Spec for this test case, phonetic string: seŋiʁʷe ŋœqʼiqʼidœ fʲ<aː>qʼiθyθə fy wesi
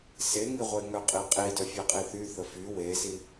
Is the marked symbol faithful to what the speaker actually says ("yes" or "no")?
no